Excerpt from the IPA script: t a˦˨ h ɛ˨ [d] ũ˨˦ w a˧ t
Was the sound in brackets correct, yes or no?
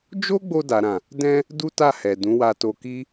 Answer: yes